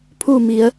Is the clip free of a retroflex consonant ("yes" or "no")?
yes